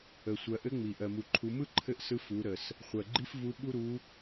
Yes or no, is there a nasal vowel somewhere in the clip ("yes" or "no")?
no